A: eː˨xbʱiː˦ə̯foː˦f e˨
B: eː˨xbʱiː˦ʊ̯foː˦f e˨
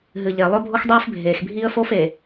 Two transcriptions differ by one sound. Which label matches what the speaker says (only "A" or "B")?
A